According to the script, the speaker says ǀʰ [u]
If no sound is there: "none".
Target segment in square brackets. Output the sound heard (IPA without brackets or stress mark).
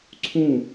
ũ